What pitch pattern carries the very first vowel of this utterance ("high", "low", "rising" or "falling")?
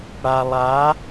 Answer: low